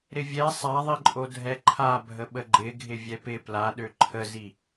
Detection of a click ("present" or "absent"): present